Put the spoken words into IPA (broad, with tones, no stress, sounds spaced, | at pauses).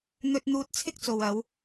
n̪ ɵ˧ t̚ n̪ uː˧ t̚ t͡sʰ ɪ˥ k̚ t͡s o˨ w ɐ˨˧ w